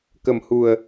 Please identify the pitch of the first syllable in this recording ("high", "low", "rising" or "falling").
low